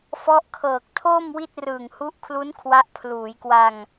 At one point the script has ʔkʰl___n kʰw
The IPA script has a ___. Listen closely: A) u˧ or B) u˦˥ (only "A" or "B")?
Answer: B